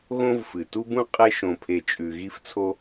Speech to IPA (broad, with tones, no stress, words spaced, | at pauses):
ɣõ˦vfɨ˩ tu˥bũ˥qʼe˦ʃõ˨ pʰe˨t͡ʃʼʉ˨ɣi˦ft͡sʰo˦